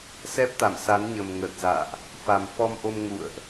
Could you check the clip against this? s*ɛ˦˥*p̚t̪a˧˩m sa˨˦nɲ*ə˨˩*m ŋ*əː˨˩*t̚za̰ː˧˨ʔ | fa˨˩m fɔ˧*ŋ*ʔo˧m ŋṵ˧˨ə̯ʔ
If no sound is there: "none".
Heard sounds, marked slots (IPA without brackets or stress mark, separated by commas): ɛ˦˥, ə˨˩, əː˨˩, m